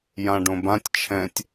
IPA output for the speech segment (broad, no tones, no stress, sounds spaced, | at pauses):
j ã ɖ õ b ã tʲ t͡ʃʰ ɛ̃ tʲ